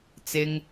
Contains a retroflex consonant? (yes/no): no